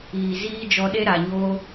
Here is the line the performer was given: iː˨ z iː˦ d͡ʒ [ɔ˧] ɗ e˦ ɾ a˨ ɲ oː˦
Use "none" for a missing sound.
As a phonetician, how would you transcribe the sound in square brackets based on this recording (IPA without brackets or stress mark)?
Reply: ɔ˧